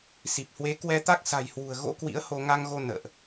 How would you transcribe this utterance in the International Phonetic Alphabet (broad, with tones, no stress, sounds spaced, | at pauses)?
s i˨˩ p̚ h w e˨˦ k w ɛ˧ t̪ a˦˥ k̚ s a̤˨˩ j h w ṳ˨˩ ə̯ ɣ o̰˧˥ k w ḭ˧˥ ə̯ h o˧ ŋ a˧ ŋ ɣ o˧ n ə̰ː˧˨ ʔ